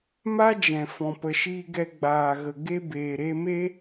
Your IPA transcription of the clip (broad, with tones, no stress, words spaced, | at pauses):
ma˦d͡ʒɛ̃˨ fɔ̃˨pə˨ʃiː˧ɡɛ˧ ɡ͡baː˨ɣə˨ ɡe˧beː˨ɾe˧me˦